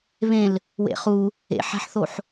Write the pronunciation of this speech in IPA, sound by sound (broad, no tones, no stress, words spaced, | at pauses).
βẽl | wḛχu | ḛħæ̤ħθoħ